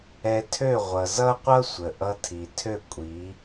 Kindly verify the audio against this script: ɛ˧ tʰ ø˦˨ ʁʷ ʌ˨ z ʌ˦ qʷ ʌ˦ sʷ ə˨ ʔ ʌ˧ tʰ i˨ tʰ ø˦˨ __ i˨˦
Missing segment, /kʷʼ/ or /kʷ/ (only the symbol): kʷʼ